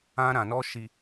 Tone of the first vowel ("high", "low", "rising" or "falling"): high